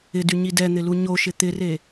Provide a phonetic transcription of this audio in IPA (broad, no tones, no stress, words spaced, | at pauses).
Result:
ɪdyɲi dɛn̪ɪlu ɲoʃɪ t̪ɪre